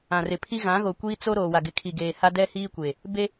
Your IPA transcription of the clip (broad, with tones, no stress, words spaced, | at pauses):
ã˨rɪ˨pʰi˦ ɣã˨˦ɣo˨kʷiː˦ t͡so˦ ɾoː˨wa˨ ɡɪ˨kʰi˨ɡeː˨ ha˦dɛ˦hiː˦kʷe˨ | be˦